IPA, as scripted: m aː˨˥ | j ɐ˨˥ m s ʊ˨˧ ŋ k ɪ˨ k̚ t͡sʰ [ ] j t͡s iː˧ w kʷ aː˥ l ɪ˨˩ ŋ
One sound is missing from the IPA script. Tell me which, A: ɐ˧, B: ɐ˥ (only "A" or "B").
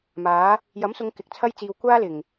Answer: B